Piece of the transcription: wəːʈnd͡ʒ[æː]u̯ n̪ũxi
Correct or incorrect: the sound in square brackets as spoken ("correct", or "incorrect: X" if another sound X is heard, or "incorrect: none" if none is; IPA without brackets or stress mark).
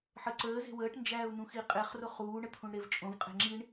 correct